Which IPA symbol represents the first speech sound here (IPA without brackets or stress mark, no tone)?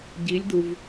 ɟ